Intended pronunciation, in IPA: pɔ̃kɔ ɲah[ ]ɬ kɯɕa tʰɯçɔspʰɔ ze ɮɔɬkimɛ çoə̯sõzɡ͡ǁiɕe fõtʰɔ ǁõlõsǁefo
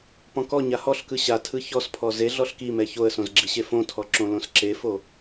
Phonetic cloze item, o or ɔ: ɔ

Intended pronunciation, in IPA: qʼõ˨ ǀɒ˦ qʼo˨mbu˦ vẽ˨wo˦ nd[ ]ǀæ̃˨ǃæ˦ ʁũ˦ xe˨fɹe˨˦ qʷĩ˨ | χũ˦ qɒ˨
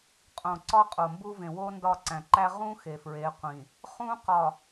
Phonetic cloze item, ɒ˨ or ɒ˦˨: ɒ˦˨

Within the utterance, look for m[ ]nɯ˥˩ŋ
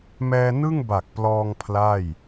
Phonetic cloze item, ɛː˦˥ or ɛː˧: ɛː˧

